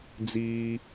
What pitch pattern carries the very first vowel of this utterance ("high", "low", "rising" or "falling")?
high